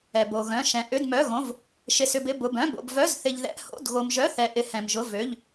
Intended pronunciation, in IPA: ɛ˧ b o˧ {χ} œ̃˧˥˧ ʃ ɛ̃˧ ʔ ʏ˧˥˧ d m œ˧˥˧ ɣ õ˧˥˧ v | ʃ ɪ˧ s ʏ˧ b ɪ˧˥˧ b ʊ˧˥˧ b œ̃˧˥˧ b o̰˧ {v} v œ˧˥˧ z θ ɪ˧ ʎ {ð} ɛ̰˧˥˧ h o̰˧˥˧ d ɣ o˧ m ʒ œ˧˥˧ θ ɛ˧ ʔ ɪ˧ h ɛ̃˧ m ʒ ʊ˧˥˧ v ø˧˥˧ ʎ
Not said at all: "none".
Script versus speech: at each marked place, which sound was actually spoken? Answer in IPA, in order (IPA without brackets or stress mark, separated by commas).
ɣ, b, ð